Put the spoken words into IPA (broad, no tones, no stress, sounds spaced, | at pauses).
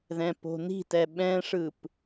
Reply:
ð ɛ̃ p o̤ n i̤ t ɛ ɓ ɛ̃ ʂ ɯ p